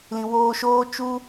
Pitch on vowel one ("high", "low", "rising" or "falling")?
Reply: low